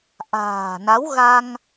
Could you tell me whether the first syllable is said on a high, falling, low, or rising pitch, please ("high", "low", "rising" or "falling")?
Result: low